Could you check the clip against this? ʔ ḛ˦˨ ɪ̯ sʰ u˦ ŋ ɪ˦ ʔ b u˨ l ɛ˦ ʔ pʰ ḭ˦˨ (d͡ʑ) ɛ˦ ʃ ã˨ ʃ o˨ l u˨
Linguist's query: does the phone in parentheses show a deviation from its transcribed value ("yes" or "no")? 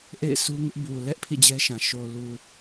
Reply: no